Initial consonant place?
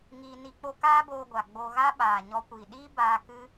velar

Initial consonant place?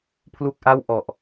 labial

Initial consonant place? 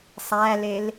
alveolar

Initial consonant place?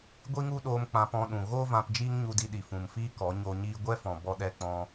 velar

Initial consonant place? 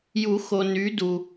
palatal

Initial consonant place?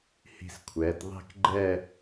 glottal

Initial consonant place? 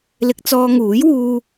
alveolar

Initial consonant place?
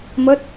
labial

